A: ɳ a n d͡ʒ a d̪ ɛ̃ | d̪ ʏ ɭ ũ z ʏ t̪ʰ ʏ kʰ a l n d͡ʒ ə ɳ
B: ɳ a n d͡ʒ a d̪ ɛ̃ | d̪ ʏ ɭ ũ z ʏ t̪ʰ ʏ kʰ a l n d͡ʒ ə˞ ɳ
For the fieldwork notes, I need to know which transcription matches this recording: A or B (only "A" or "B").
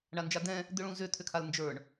B